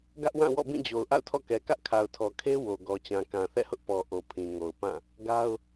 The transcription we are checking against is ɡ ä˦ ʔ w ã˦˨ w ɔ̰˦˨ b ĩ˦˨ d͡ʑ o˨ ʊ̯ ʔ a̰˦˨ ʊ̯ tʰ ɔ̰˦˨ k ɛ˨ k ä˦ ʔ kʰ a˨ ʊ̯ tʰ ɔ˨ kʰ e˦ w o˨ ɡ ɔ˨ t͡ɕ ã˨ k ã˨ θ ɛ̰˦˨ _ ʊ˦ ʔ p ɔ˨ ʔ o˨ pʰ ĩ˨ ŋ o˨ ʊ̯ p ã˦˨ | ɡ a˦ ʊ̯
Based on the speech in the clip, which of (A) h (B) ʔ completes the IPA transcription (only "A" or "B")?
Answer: A